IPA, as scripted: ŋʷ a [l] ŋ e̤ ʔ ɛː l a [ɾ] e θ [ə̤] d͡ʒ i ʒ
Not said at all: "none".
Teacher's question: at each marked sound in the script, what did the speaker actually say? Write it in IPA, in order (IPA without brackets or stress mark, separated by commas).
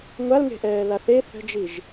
l, θ, ə̤